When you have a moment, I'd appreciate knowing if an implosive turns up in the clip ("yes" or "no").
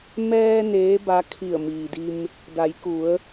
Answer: no